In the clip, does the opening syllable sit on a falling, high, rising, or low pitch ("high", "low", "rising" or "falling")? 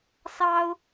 high